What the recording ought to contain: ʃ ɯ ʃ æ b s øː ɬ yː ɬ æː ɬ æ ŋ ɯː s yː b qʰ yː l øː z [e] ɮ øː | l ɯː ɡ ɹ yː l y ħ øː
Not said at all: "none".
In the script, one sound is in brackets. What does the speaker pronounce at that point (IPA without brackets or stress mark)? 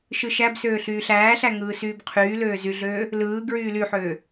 y